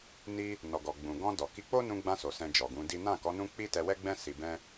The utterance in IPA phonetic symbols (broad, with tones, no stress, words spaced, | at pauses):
ni˧ | nɔ˨ɡɔ˨ ɡ͡bũ˨ɡɔ̃˧dɔ˨ki˧ k͡po˦nũ˧ɡ͡bã˧so˨ sɛ̃˧d͡ʒɔ˨ɡũ˨˦di˦ nã˦˨kɔ˨˦ nũ˦k͡pi˦tɛ˧ wɛ˦ɡ͡bɛ̃˦ si˧bɛ̃˦